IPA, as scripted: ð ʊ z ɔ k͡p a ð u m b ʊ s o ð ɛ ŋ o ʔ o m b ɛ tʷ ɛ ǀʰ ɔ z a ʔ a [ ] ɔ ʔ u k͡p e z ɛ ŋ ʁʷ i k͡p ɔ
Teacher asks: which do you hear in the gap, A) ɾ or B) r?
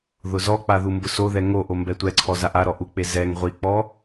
A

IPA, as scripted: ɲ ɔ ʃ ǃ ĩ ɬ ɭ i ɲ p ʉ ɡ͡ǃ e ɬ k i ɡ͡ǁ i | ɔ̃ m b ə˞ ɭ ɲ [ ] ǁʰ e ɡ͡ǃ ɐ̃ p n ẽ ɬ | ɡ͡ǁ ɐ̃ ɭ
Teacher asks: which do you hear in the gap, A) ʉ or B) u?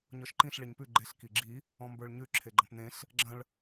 A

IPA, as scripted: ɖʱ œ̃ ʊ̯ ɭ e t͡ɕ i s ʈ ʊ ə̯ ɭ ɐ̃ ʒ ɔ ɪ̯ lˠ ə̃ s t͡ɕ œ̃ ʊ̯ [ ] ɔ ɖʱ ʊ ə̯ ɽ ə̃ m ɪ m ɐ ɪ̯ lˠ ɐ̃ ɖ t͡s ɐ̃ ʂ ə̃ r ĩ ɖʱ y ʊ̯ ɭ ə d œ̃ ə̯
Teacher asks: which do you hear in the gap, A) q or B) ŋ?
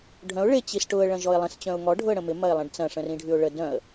B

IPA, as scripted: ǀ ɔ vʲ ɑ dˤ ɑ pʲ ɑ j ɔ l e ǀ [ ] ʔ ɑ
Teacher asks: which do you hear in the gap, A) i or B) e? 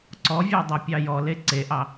B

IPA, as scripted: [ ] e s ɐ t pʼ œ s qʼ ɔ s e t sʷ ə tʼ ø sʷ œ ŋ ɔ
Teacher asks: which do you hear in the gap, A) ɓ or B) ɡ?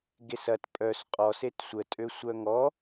B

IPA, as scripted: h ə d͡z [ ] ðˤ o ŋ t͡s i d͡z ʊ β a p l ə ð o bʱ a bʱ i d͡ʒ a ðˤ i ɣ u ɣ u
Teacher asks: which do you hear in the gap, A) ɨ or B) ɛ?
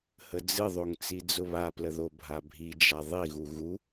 A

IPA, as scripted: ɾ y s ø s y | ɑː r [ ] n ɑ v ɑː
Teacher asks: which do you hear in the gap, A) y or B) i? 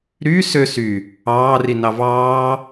B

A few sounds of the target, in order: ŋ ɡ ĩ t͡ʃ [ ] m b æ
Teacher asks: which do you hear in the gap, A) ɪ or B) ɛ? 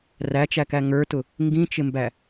A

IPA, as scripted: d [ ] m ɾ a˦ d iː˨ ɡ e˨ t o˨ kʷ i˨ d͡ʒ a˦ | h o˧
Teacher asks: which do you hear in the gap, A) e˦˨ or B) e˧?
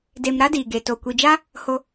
B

